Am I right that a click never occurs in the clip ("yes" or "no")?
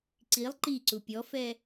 no